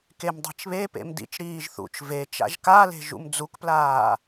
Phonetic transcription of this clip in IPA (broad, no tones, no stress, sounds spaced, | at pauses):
k e m dˤ e̤ t͡ʃ β e p ḛ m d ḭ t͡ʃ ɾ iː ʒ θ ṵ t͡ʃ v e t͡ʃ a̰ ʒ k a l e̤ ʒ ṵ m d͡z u k p l aː